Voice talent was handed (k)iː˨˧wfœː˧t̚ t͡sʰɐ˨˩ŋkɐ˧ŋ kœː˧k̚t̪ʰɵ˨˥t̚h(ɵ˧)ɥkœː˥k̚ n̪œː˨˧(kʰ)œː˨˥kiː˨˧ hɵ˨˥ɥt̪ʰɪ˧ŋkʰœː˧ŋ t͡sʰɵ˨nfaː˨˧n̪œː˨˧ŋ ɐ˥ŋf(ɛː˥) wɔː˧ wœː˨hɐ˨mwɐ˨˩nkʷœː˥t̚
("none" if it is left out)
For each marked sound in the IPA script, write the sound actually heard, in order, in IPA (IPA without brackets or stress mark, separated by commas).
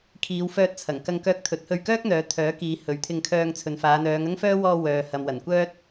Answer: kʰ, ɵ˧, t̪ʰ, œː˥